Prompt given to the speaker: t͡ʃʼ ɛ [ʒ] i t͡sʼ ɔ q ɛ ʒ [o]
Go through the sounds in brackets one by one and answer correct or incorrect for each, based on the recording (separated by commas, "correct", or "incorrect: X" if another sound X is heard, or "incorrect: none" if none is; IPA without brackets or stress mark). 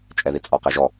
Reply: incorrect: ð, incorrect: ɔ